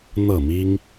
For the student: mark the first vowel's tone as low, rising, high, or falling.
falling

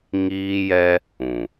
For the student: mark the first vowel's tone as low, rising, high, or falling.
high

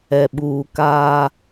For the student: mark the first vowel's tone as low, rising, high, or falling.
low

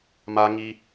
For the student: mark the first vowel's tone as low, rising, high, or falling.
low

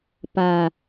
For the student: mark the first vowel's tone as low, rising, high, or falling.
low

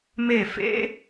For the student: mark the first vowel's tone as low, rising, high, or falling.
falling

